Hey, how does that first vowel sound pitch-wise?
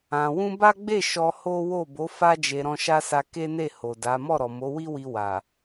low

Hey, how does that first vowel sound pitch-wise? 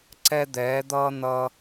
high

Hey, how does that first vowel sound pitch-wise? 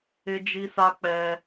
high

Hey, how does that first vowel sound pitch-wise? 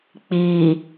low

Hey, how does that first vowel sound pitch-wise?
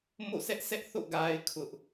falling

